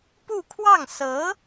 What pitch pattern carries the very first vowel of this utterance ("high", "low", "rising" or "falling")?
falling